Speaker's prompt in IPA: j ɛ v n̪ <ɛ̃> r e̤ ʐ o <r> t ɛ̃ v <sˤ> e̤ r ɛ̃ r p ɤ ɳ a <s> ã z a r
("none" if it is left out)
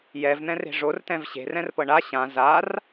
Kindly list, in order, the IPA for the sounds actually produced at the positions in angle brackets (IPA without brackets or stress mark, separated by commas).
ɛ̃, r, ɕ, ɕ